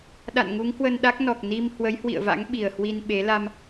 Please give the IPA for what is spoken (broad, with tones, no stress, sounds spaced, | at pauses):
ɗ a̰˧˨ n ŋ u˨˦ ŋ h w ə˧ n ɗ a˦˥ k̚ n ɔ˨˩ k̚ n i˧ m h w ə˨˦ j h w ḭ˧˨ ə̯ v a̰˧˥ ŋ ɓ i˨˩ ə̯ h w i˧ n ɓ e˨˦ l a˧ m